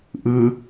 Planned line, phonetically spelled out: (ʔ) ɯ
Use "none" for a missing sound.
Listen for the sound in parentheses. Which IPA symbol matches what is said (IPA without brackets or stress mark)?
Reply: ʔ